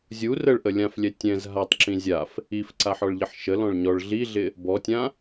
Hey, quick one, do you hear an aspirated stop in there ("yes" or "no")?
no